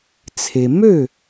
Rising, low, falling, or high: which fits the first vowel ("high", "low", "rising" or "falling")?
low